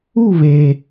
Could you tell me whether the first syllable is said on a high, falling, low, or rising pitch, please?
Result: falling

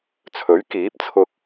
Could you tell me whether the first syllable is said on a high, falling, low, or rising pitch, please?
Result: rising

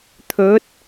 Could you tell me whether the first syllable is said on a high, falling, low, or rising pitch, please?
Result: rising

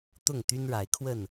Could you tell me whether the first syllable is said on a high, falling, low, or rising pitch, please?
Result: falling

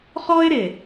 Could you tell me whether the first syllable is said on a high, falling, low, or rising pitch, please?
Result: high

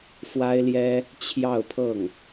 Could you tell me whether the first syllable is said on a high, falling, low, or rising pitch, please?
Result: high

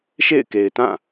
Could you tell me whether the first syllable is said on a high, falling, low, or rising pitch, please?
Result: falling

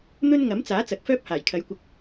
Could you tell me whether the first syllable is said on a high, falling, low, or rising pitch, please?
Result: high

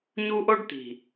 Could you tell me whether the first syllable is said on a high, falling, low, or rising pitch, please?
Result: high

